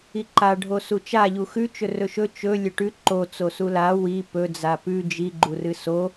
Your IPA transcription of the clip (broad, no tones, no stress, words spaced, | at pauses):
iǃa ɖʱosut͡ʃa ʎuxʉ t͡ʃɵrɵʃɵ t͡ʃɵ lʲɵʈʉ ǃo t͡sosula wi pɵ d͡zapʉ d͡ʒi ɡ͡ǃurɨso